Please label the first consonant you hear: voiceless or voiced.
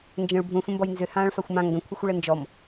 voiced